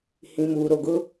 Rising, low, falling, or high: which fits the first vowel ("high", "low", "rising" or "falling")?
low